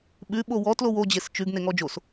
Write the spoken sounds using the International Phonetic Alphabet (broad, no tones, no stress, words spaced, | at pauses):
ɓʉ ɓowɔ tlowo d͡ʑest͡ʃʉɡ neŋɔd͡ʒos